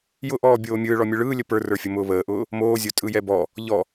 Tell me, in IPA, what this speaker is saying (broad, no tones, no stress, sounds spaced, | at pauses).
j ʊ ʔ ɔː bʲ oː mʲ ɯː ɭ ɔ mʲ ɯ ɭ ɯː lʲ ə p ə˞ r ə˞ fʲ ʊ m ʊː β əː ʔ ʊː | m oː zʲ o tʼ ɯ j ɛ b ɔ | ʎ ɔ